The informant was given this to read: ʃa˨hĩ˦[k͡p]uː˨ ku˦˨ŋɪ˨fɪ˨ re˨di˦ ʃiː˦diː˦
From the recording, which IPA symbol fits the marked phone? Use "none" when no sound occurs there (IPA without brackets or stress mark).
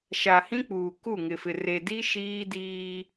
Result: k͡p